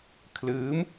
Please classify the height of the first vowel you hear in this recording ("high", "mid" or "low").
high